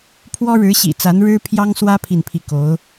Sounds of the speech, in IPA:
pʰ w ɔ˥ ɻ ɻ̩˧˥ ɕ ḭ˨˩ t͡s a˧˥ n ɻ ɻ̩˥ pʰ j ɑ˥ ŋ s w ä˥ pʰ i˥˧ n pʰ i˥˩ k o˧˥ ʊ̯

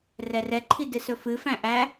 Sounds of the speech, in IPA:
r ɛ r ɛ ǃʰ i d ɨ s ɵ f ɨ f æ̃ ʔ æ

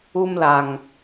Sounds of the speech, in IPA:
u˦ m l a˨ ŋ

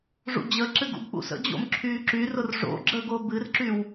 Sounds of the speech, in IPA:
ʐ ṵ d͡ʑ ə ǁ ɨ ɡ ṵ ɡ k͡p ṵ s ə̰ d͡ʑ o̰ m ǁʰ yː ǁ y r ʊ r ʐ o̰ ɡ͡ǁ ə ɡ o b ɨ r ǁ y w

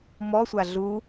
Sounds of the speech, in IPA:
m ɔ sʷ a ɮ u

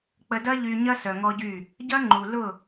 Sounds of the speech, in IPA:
k͡p ə˧ d ɐ˦ ʎ y˧ ɲ ɐ˦ s œ˧ ŋ ɔ˦ ɟ y˦˨ | ɟ ɐ˦ ŋ͡ǃ u˨ l ʊ˦˨

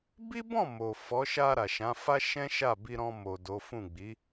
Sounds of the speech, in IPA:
b i˦ b ɔ̃˦˨ m o˨ f ɔ˨˦ ʃ a˧ ɾ a˨ ʃ ã˨˦ f a˦ ʃ ɛ̃˦ ʃ a˦˨ b i˧ ɾ ɔ̃˧ m o˨ d o˨˦ f ũ˦˨ ɡ͡b i˨˦

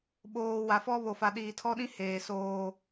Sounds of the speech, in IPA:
ɓ oː˨ w a˨ f ɔ˦ β o˨ f a˨ ɗ iː˨ tʰ ɔ˦ ɗ ĩ˦ h eː˨ s oː˦

